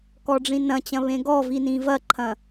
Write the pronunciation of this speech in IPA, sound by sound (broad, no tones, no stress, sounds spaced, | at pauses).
k ɔ ɖ͡ʐ ĩ n ɐ̃ t͡ɕ ɐ̃ β ẽ ɡ ɔ v i n ĩ v ɐ ǃʰ ɐ̃